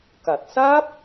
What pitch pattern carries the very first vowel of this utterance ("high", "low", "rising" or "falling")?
low